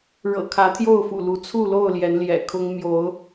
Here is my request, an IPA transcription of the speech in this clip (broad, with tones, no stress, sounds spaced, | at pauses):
ɻ ɤ̰˨˩ kʰ ä˨˦ t̪ʰ j o˥˨ ʊ̯ f ṵ˨˩ l u˨˦ t͡sʰ u˥˨ l o˥˨ ʊ̯ l j ɛ˨˦ n l j ɛ̰˨˩ kʰ ʊ˦ ŋ m j o˨˦ ʊ̯